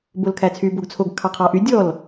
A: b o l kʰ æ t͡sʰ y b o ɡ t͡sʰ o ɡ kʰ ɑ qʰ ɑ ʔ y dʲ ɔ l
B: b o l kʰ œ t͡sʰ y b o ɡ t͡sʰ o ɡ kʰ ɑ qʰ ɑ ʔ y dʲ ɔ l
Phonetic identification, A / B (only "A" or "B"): A